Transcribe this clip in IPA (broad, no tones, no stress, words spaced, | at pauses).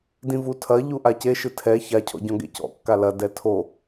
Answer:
dĩvutʰɐ ʎuʔace ʃɨtʰɛ ça cʰɔ̰ɟɔ̃ɡḛcɔ̰ kːalɐ dɛtʰo